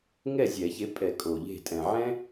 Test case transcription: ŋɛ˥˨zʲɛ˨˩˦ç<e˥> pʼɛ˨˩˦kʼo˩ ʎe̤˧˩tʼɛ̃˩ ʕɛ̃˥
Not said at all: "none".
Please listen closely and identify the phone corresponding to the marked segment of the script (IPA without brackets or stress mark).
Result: e˨˥